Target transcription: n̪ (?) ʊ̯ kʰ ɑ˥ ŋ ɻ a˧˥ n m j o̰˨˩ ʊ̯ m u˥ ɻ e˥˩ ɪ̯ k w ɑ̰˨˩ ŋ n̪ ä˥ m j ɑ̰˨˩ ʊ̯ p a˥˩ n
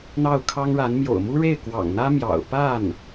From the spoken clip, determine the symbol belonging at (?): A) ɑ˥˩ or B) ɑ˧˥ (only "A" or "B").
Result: A